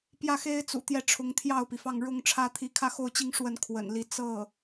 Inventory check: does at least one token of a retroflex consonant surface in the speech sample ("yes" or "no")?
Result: yes